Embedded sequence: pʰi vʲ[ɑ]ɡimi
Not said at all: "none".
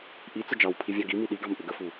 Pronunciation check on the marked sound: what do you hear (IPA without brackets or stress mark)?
ɑ